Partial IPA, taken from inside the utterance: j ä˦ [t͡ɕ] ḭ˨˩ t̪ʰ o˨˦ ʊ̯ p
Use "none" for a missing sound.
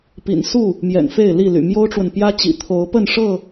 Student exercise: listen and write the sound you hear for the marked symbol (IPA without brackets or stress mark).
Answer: t͡ɕ